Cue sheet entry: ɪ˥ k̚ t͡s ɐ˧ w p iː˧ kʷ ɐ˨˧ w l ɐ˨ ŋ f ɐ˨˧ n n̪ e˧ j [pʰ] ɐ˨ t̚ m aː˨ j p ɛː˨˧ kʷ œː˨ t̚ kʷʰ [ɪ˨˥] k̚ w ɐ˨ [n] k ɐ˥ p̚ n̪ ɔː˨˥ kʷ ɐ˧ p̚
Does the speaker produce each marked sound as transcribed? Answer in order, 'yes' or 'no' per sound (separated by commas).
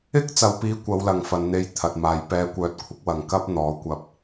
no, yes, no